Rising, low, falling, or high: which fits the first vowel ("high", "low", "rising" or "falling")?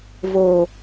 low